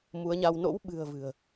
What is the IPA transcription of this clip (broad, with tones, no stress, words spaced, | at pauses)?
mu˨˦ə̯ɲa˧w no̰˧˥wɓɨ̤˨˩ə̯ vɨ̤˨˩ə̯